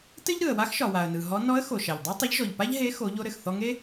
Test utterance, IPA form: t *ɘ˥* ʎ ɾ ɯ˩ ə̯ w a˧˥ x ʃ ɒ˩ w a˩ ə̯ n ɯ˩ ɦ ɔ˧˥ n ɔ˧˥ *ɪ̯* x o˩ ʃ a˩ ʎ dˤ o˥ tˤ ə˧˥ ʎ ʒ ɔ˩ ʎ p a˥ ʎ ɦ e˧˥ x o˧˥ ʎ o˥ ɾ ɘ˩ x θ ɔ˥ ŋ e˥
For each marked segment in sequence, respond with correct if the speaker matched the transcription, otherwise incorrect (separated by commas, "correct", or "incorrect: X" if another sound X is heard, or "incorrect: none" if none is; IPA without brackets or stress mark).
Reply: correct, incorrect: ə̯